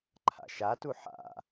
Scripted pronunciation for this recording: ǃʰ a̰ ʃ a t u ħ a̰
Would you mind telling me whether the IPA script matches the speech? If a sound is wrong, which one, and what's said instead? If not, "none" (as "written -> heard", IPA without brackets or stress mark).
none